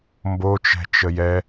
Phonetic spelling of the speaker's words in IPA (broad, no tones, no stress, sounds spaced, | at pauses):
m b o t͡ʃ ɛ̤ t͡ʃ ə j ɛ